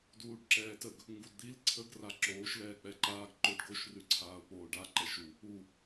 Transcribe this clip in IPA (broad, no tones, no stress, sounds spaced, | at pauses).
d uː ɖ ǁ ɛː t ə ɡ | ŋ ɡ u d d̪ i l ǀʰ ə ɡ r a ǁ oː ʃ l ɛː k͡p ɛ ǃ aː ɡ ǃ o ɖ ɡ o ʃ r ʉ ǀʰ aː ʊ̯ k͡p oː ɖ a ǃ ɛ ʃ u | u